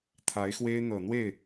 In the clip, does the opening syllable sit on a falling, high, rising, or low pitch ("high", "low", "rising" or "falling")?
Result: rising